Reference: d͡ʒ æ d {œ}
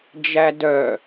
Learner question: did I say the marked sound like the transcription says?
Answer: yes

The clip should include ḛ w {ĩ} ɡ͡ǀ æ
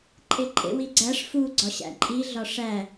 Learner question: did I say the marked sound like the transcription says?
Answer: no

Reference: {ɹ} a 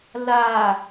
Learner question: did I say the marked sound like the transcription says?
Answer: no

